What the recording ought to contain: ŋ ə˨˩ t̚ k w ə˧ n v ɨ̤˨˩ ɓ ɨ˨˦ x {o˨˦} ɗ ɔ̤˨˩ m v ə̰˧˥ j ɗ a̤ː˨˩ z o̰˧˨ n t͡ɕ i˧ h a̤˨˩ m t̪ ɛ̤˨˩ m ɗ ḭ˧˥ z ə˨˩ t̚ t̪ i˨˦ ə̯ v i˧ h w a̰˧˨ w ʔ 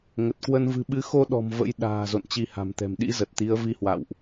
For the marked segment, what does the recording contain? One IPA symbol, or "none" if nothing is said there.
o˧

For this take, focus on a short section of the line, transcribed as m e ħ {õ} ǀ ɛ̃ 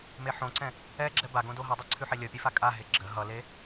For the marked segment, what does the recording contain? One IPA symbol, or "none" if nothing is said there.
õ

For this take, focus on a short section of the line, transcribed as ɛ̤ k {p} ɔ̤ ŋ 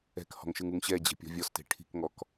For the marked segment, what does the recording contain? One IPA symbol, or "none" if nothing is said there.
h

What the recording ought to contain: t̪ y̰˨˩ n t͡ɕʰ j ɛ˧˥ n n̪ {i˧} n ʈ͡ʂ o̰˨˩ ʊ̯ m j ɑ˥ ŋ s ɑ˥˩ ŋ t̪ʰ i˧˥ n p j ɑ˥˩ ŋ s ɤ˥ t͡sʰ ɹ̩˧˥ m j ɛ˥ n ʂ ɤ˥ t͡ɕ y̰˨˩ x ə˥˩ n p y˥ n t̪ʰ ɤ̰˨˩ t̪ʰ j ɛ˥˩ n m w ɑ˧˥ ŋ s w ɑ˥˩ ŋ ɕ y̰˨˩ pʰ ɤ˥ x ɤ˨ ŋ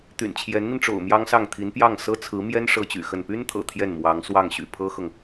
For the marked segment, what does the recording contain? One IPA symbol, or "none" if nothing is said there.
i˧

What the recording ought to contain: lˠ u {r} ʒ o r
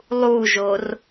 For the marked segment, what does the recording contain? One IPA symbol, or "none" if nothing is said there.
none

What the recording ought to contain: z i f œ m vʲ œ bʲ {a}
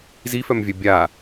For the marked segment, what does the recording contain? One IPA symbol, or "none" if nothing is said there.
a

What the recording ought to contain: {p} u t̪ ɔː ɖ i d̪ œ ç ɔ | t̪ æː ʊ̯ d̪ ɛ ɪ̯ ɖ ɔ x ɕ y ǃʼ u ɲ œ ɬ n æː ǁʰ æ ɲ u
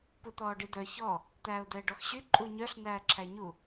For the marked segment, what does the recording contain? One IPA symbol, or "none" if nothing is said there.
p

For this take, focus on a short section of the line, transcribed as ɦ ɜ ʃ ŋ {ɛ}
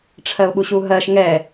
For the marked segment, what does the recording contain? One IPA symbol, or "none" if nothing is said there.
ɛ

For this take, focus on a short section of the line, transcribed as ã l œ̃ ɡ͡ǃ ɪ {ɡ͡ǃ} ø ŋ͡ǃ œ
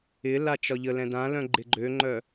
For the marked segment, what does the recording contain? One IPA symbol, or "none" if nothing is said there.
ɡ͡ǃ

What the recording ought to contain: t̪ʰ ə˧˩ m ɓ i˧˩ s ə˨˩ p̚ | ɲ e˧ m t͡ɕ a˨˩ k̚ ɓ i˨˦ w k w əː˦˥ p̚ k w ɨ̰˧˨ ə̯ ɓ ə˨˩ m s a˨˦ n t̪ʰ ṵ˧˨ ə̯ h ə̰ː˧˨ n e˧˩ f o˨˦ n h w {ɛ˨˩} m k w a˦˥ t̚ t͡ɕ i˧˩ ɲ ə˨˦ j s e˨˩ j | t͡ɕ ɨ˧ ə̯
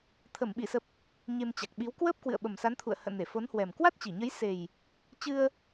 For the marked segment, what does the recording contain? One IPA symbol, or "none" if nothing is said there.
ɛ˨˩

